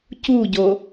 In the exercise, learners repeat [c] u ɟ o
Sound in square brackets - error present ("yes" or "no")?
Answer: no